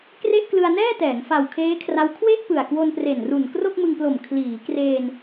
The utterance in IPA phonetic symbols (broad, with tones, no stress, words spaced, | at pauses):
kre˥˩ʔklɯ˧a̯ nɛː˥˩tɛː˩˦ŋ fa˨˩wkʰeː˦˥kʰra˦˥w kʰwe˥˩ʔpɯ˨˩a̯ kwo˧npre˨˩nru˨˩n kro˥˩k̚mɯ˧ŋplo˨˩m kʰliː˩˦ kreː˧n